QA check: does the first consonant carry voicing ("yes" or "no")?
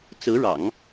no